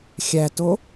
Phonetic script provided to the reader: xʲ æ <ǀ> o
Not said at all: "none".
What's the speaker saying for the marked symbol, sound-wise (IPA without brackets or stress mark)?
t